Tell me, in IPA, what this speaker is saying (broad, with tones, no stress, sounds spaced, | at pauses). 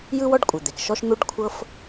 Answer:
j ɯ˥ w ɔ˥ ɖ kʷʼ ɯ˩ d̪ e˩ k ʃ ɔ˥ ʃ n̪ u˥ ɖ kʷʰ ɤ˥ f